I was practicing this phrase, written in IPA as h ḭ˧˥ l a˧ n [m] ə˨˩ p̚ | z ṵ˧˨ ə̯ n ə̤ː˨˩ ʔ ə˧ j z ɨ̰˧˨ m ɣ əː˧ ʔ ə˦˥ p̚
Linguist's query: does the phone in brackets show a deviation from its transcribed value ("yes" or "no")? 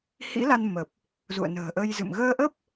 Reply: no